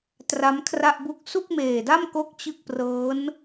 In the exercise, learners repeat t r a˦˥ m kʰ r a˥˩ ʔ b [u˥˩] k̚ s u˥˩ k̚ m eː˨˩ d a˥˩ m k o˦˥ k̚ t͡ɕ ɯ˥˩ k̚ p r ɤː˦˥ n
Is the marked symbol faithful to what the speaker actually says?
yes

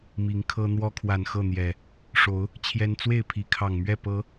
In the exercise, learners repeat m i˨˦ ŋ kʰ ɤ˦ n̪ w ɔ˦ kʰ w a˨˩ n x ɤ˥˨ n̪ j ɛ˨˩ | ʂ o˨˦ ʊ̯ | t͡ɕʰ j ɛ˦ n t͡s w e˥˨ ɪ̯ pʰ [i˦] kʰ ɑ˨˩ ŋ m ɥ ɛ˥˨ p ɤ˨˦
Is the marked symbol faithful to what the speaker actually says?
no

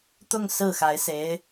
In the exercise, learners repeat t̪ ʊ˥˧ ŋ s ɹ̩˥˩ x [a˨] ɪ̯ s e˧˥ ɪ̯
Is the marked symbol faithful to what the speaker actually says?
no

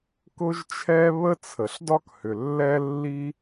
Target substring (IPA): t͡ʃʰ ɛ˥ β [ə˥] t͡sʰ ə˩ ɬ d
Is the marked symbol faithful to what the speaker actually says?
yes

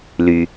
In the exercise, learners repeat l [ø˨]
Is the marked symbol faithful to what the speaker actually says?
no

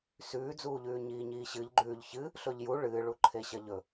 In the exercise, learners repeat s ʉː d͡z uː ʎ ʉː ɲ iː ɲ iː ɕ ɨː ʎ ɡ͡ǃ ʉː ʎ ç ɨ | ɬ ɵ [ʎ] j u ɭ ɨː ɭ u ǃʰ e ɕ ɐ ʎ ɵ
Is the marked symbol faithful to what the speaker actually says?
yes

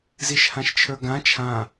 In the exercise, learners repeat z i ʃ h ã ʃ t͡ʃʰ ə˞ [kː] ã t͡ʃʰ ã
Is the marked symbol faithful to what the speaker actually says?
no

